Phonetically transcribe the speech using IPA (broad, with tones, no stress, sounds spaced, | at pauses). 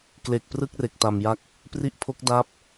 k l e˨˩ k̚ p r ɯ˥˩ k̚ r e˨˩ k̚ t a˨˩ m j a˥˩ k̚ | p r i˦˥ ʔ pʰ o˦˥ k̚ d a˥˩ p̚